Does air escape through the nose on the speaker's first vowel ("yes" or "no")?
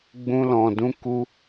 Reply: yes